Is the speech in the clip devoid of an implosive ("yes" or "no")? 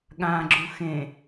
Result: no